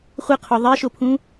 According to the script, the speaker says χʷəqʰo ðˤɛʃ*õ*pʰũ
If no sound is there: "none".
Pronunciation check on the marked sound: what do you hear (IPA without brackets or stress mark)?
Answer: o